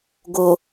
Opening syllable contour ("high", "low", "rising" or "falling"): low